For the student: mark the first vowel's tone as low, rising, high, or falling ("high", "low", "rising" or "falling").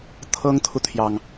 high